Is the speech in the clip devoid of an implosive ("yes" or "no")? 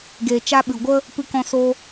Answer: no